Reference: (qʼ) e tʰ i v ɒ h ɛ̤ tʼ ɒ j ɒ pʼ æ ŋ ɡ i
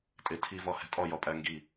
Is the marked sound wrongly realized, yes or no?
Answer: yes